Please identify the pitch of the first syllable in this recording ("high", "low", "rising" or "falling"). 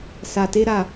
low